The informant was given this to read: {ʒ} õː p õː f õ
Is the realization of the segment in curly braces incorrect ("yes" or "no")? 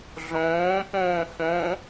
yes